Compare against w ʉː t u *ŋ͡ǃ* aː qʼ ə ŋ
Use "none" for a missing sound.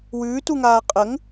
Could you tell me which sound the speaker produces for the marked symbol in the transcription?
ŋ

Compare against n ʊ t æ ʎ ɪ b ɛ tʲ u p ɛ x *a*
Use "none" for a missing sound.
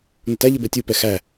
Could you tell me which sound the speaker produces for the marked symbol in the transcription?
æ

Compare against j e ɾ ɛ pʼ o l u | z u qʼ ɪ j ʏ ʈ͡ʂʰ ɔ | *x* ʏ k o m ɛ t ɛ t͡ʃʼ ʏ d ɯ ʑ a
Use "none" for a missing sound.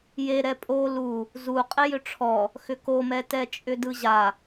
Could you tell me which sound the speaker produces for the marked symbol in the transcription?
x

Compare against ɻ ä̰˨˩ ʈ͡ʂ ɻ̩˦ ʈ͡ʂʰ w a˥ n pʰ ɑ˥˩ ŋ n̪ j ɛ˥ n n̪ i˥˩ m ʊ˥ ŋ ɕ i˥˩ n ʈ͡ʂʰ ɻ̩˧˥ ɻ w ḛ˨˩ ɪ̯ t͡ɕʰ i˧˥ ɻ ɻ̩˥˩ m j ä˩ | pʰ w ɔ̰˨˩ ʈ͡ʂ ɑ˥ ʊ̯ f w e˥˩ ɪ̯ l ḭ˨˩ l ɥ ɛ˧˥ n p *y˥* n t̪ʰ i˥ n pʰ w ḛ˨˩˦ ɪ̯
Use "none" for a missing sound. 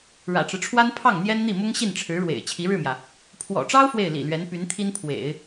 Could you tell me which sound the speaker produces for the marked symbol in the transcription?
y˧˥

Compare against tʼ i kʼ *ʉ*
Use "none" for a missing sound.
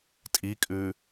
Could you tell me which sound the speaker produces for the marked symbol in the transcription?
ʉ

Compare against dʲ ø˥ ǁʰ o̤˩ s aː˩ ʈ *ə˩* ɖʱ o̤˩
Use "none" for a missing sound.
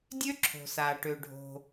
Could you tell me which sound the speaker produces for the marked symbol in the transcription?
ø˩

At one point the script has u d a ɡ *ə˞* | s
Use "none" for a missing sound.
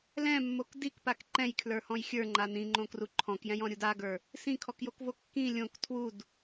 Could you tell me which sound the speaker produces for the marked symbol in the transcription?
ə˞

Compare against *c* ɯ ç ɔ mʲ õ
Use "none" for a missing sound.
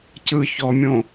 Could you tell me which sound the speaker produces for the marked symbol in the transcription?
c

